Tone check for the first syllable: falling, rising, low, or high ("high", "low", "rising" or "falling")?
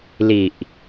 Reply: low